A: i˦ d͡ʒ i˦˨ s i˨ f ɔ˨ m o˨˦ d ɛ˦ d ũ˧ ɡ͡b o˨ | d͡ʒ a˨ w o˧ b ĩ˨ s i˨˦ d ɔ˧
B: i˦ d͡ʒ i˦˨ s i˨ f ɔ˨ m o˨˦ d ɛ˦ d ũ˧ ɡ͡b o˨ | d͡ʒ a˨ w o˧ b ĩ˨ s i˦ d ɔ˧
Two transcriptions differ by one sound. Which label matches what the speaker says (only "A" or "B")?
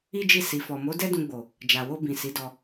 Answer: A